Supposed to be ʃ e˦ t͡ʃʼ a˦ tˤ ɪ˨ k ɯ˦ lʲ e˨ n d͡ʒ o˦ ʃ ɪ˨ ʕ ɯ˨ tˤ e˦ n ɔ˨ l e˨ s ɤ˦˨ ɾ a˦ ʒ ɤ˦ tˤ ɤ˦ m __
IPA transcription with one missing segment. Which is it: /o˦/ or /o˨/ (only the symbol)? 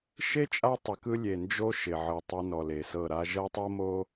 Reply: o˦